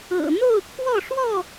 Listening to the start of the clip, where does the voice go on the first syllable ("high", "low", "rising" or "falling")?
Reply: low